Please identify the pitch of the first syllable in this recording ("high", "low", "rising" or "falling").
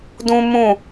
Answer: high